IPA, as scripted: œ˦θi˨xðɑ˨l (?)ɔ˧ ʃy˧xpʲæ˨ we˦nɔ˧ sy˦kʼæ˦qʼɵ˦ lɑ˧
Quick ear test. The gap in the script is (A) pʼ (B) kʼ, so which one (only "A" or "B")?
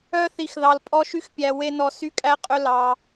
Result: A